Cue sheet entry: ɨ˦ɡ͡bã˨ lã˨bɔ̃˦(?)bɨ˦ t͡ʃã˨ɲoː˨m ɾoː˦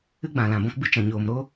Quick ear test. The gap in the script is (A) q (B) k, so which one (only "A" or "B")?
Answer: B